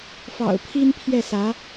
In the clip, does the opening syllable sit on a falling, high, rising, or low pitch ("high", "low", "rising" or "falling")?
low